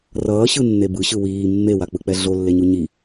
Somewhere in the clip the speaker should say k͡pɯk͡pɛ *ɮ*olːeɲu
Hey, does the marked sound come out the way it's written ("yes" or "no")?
yes